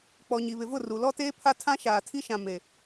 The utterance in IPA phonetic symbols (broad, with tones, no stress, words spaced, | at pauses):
k͡pɔ˨ɲi˨βɪ˨vʊ˦˨ ru˨ lɔ˦teː˦pʰa˦ tʰã˦ʃaː˨tʰi˦ʃã˨ me˨